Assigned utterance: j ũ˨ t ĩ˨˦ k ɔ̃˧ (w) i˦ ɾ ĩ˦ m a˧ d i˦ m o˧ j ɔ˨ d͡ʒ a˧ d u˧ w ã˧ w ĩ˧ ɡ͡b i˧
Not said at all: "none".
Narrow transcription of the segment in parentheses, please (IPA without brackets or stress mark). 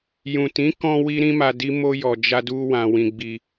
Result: w